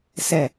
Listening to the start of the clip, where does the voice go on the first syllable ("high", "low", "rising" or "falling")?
falling